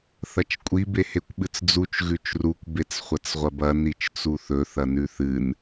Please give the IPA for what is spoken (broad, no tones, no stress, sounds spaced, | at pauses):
θ ɐ t͡ʃ kʷʼ i b e h e kʷ ɓ ɨ t͡s d͡z u t͡ʃ ɣ ʉ t͡ʃ r u kʷ b e t͡s χʷ ɐ t͡s ʁʷ ɐ b ɐ n i t͡ʃ t͡s u θ ɵ θ ɐ n ʉ θ ɨ n